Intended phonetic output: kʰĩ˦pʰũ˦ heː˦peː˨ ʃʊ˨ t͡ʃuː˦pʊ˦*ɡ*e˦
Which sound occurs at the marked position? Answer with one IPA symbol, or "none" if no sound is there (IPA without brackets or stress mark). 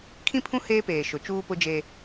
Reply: d͡ʒ